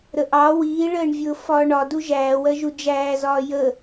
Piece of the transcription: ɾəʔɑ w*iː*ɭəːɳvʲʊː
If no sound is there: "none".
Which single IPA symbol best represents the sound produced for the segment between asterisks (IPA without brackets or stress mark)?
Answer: iː